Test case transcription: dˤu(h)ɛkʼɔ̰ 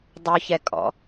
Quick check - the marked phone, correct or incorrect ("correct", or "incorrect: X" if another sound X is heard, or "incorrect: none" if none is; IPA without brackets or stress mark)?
incorrect: ç